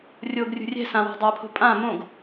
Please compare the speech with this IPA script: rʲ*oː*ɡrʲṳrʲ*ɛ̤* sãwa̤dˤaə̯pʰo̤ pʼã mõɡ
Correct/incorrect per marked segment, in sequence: correct, correct

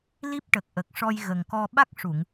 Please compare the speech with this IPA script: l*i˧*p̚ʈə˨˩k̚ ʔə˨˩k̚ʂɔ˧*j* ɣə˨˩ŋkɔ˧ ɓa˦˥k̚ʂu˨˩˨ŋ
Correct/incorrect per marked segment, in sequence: incorrect, correct

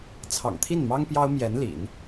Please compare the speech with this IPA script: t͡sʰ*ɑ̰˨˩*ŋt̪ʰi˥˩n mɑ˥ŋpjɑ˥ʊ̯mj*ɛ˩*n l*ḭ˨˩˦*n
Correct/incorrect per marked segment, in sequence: correct, incorrect, correct

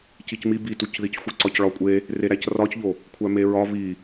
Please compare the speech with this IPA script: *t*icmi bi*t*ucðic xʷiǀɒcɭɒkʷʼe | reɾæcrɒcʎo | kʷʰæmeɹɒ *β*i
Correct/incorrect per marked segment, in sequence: incorrect, correct, correct

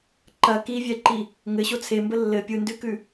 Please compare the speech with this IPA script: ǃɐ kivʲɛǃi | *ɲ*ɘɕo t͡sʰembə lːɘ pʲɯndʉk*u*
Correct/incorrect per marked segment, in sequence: incorrect, incorrect

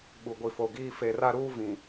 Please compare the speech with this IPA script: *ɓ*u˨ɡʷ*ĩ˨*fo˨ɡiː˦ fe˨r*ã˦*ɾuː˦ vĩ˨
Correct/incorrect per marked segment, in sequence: correct, incorrect, incorrect

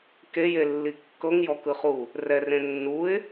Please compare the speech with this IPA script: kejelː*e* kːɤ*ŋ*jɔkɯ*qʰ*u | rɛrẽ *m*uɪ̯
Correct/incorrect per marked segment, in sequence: incorrect, correct, incorrect, incorrect

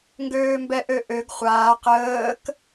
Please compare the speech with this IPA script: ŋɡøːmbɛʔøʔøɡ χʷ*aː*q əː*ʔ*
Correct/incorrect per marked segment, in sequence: correct, incorrect

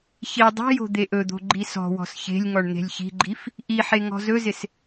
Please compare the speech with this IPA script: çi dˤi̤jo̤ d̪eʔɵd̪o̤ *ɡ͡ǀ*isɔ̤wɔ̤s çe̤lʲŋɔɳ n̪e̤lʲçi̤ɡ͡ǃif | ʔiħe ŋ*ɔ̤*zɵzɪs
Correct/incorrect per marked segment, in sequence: incorrect, correct

